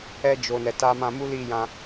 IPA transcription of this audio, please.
ɛ˧ d͡ʒ o˨ n ɛ˨ t a˧ m ã˧ m u˦ l i˦˨ j ã˧

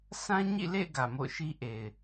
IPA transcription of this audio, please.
sʰ ã˦ ɲ ḭ˦˨ l ḛ˦˨ ɪ̯ ɡ ä˨ m o̰˦˨ ʊ̯ ʃ i˦ ʔ e˨ ɪ̯

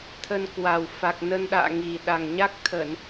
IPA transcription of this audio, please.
t̪ʰ ə˧ n k w a˨˩ w f a˨˩ k̚ n ə˧ n ɗ a̰ː˧˨ ŋ i˨˩ ɗ a˨˩ ŋ ɲ a˦˥ k̚ t̪ʰ ə˧˩˨ n

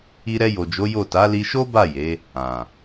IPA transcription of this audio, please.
i˧ ɾ ɛ˧ j o˨ d͡ʒ o˨˦ j o˦˨ t a˨˦ l i˧ ʃ o˦ b a˦˨ j e˨˦ | ã˨

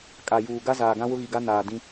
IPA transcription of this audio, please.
kʼ a˨ j uː˨ ɡ a˦ z aː˨ ɡ ã˦ w ʊ˦ ɣ i˨ ɡ a˦ n aː˨ d ĩ˦

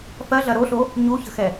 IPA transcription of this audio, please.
f ɜ ɮ ɐ ɾ o ɬ o | ɲ u ç ə̤ x ɛ

